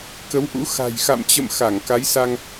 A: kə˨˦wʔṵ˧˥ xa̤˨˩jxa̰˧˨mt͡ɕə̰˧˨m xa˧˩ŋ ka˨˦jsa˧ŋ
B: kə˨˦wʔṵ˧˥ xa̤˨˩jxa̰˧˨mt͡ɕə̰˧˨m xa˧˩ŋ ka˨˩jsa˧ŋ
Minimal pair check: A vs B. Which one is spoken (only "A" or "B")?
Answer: A